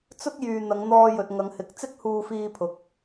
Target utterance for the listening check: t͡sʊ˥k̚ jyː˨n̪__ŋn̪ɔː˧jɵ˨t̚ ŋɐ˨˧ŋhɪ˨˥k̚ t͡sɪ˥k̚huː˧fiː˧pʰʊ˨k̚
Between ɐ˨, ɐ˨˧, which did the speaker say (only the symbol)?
ɐ˨˧